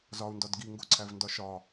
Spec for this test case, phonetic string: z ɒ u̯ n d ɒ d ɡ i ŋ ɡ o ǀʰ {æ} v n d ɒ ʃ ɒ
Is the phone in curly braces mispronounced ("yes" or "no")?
no